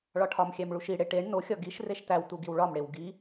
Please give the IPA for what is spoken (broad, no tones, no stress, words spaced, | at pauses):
ɭɒʈʰɒmxʲæm ɭuʃiɽe ʈeɳ noxʲɒ ɡiʃ reʃt̪æwt̪u ɡiwɭɒmɽew ɡi